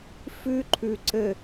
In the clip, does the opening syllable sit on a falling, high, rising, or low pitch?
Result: high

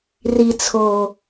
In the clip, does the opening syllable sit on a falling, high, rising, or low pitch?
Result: low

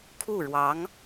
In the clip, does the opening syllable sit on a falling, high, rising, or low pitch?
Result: falling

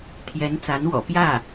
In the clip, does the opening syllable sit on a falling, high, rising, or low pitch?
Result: rising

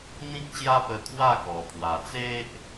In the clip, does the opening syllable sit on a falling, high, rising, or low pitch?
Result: high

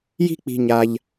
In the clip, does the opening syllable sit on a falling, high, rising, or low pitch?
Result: high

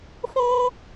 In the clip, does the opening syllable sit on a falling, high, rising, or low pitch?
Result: high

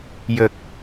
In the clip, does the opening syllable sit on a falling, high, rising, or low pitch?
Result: low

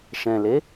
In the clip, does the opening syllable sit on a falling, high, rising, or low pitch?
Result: low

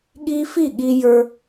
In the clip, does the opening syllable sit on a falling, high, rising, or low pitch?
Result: high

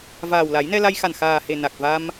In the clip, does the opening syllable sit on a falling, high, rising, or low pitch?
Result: low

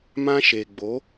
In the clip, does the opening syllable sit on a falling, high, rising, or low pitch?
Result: high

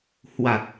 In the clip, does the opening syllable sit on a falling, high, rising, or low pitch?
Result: low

